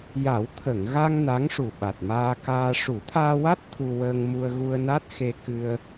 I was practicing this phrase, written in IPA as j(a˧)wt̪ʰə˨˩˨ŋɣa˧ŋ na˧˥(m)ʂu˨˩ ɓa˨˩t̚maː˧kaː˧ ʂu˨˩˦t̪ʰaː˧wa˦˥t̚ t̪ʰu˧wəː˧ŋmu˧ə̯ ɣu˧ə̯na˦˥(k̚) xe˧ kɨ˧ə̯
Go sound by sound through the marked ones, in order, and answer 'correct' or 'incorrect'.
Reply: incorrect, incorrect, incorrect

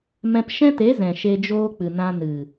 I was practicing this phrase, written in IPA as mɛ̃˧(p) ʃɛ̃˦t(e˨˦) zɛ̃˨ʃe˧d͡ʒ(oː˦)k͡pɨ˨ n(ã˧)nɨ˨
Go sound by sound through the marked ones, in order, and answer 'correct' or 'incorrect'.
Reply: correct, correct, correct, correct

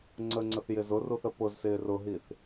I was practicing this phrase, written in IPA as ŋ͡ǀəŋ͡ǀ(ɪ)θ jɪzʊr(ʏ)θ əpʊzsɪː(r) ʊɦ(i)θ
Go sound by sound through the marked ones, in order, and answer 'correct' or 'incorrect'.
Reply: incorrect, incorrect, correct, correct

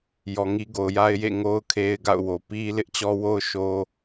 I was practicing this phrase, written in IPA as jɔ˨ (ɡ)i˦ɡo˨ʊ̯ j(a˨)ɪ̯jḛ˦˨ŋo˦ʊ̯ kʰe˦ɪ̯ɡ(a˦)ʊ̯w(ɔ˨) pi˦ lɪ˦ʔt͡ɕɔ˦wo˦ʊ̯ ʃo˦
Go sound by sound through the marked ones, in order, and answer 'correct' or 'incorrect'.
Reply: incorrect, incorrect, incorrect, incorrect

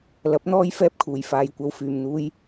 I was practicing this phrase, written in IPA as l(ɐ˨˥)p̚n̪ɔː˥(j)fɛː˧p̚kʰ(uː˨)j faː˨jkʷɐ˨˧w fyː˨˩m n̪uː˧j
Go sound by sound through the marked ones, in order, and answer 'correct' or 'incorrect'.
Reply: correct, correct, incorrect

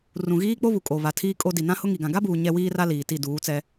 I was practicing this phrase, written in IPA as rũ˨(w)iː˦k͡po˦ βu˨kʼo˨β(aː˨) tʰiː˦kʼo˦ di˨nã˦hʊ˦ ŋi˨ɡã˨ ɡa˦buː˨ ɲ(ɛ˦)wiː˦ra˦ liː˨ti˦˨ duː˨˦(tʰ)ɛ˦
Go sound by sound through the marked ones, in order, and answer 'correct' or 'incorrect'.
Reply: incorrect, incorrect, correct, incorrect

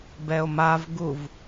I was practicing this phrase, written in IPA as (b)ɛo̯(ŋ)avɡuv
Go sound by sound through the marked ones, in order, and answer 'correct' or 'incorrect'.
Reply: correct, incorrect

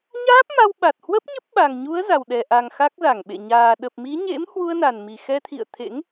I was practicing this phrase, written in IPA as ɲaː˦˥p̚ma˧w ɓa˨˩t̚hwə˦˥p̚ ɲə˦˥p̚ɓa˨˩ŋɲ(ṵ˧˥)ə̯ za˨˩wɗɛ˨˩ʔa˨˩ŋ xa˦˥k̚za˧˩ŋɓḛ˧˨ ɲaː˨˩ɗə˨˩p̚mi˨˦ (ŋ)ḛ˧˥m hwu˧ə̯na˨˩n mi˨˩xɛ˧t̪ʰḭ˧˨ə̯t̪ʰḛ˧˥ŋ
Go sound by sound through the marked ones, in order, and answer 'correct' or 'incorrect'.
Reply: incorrect, incorrect

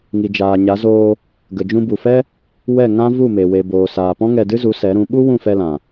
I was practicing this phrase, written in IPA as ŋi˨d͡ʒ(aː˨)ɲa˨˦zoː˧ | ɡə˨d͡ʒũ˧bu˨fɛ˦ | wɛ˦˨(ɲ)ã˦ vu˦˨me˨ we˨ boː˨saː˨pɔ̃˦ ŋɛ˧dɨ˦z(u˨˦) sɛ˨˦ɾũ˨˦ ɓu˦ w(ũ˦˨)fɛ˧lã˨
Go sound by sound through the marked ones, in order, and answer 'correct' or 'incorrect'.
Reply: correct, incorrect, correct, correct

